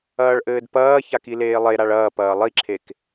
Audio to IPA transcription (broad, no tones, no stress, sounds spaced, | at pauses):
ɐː ɭ ʔ ɘː d p ɐː ç a k i l eː lˠ e ɾ a ɭ ɐː p ɐː lˠ i ǁʰ e k